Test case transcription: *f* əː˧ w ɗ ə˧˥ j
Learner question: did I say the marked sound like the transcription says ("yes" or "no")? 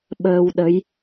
no